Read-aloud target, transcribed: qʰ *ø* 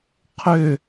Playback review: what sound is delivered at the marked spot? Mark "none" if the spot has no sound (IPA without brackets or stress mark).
ø